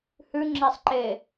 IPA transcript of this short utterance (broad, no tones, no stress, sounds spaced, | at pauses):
h ʉ ŋ͡ǁ e sˤ ǃ e